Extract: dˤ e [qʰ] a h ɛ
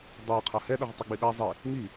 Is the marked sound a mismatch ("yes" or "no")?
no